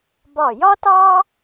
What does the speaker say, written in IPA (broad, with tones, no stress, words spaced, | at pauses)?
bɒ˧˩jɒ˥tɑ˥